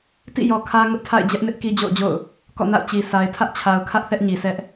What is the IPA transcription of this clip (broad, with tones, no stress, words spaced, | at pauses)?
tḭ˦˨jɔ˨kʰä˦ ŋʊ˦ʔtʰa̰˦˨ɪ̯ d͡ʑɛ˦ʔnɪ˦ʔ ki˦d͡ʑo̰˦˨ʊ̯d͡ʑo̰˦˨ʊ̯ | kɔ̰˦˨na̰˦˨ʊ̯ t͡ɕi˨sa˨ɪ̯ tʰä˦ʔt͡ɕʰa˨ʊ̯kʰä˦ʔ θɛ˦ʔɲi˨sɛ˦ʔ